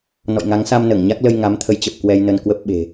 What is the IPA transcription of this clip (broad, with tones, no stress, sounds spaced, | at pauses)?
n ɔ̰˧˨ j ŋ a˨˦ ŋ s a˧ m n əː˧˩ ŋ ɲ a˦˥ k̚ l ə˧ j ŋ a˨˦ m t̪ʰ ə˨˦ j t͡ɕ ə˨˩ p̚ k w ɛ˧ j n ə˧ n k w ə˦˥ p̚ ɓ e̤˨˩